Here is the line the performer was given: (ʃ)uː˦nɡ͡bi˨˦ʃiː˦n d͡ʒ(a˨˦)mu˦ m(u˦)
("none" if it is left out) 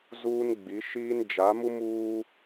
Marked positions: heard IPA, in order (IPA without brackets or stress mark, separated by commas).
z, a˨˦, uː˦